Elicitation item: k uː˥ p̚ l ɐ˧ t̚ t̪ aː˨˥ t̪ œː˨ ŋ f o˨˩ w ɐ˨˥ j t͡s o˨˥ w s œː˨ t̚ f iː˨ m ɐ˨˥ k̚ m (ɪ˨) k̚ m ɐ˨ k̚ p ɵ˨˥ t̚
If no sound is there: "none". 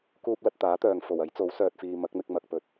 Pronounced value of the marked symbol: ɪ˧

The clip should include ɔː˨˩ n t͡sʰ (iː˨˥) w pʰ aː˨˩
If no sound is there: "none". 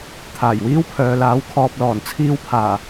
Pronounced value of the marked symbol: iː˧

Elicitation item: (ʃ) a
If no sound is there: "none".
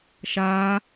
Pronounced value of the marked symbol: ʃ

